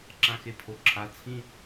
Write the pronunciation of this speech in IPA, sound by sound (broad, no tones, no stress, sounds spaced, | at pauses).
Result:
ǁ ã x e pʰ o ǁʰ a t͡sʰ ĩ